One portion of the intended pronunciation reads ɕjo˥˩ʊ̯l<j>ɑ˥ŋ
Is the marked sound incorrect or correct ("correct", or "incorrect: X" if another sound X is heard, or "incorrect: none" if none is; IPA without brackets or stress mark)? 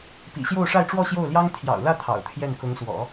correct